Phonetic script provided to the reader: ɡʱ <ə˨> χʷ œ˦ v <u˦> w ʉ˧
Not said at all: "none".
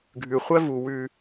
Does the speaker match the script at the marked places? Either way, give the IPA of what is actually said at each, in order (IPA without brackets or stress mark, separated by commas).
ʉ˨, u˨